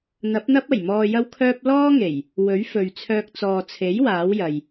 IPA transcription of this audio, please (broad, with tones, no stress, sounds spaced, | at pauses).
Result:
n̪ ɐ˨˥ p̚ n̪ ɐ˥ p̚ ɐ˨˩ j m ɔː˧ j ɐ˥ w kʰ œː˥ p̚ l ɔː˥ ŋ e˨˩ j | w ɵ˨˥ ɥ f ɵ˨ ɥ t͡sʰ œː˧ k̚ t͡s ɔː˨ t͡sʰ e˨˥ j w aː˨˥ w j ɐ˨ j